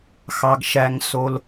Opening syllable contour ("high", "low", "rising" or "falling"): low